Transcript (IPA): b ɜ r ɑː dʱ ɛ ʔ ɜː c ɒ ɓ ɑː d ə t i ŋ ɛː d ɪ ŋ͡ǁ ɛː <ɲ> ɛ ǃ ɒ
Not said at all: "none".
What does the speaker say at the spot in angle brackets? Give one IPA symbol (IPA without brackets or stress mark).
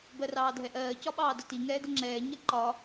ɲ